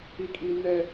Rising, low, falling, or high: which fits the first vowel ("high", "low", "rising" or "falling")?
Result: high